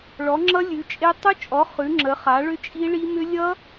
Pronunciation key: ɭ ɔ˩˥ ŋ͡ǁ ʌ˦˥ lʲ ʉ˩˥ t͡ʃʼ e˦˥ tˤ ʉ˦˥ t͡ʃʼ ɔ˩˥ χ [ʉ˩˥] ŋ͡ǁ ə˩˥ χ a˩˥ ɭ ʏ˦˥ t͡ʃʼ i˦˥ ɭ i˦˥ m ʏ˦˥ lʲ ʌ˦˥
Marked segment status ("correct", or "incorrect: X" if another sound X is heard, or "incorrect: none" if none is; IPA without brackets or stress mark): correct